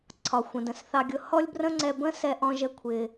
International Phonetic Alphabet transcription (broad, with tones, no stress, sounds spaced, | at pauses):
ǀʰ ɒ˩ xʷ ə̃˩ d ə̃˩ s θ ɑ˧ ɡʲ ʊ˧ h ɔ˥ lʲ b r ə̃˥ ŋ͡ǀ ɛ˧ b ə̃˥ s ɛ˧ ʔ ɔ̃˧ ʒ ə˧ kʷʰ ɪ˩